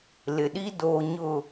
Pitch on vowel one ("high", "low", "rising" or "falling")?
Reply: low